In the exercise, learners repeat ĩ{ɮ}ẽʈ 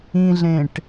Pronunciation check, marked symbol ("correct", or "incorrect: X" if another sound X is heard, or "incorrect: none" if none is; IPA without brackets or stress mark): correct